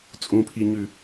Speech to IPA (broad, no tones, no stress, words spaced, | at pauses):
t͡sʼũpʰiɲʉ